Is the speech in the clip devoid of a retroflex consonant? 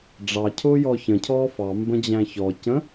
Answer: no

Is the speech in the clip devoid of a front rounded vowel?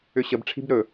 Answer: no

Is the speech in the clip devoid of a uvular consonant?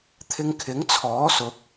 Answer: yes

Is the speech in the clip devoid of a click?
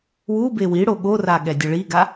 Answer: yes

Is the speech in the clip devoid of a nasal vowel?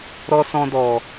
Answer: no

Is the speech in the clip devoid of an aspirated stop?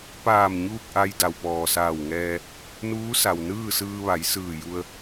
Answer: yes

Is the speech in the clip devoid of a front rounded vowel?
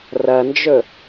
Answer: yes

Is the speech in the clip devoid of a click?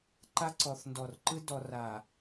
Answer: no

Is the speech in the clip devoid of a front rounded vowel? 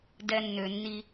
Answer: no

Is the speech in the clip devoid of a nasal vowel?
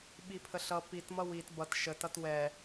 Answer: yes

